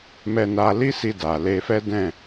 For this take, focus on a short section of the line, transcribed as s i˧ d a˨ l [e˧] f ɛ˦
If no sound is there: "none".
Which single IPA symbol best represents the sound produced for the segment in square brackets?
e˧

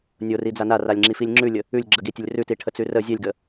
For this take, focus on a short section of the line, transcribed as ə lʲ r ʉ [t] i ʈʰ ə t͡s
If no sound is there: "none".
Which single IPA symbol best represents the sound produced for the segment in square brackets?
t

